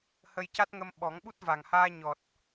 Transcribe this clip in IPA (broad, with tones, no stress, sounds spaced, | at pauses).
h ə˧ j c a˦˥ t̚ ŋ ə˧ m ɓ ɔ˨˩˦ ŋ ɓ u˦˥ t̚ v a˨˩ ŋ h aː˧ ɲ ɔ˨˩ t̚